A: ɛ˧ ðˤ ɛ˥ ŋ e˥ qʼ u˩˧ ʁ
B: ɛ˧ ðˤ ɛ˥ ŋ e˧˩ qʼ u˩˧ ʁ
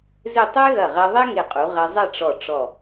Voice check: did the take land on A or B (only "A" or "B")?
B